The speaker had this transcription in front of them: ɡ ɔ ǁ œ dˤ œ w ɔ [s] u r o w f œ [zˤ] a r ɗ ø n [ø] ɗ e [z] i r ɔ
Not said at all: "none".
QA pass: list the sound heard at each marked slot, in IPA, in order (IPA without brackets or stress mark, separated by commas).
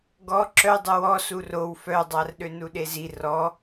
s, dˤ, u, z